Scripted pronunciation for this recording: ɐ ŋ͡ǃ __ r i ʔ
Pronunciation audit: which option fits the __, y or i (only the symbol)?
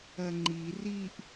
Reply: i